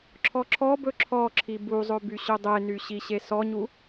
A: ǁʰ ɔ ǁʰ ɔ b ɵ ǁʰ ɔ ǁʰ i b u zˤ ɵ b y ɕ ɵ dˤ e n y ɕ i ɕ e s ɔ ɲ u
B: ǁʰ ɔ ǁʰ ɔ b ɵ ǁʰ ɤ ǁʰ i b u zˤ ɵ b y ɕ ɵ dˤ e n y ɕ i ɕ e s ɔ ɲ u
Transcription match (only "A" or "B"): A